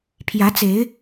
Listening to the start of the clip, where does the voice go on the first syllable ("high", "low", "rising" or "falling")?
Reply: rising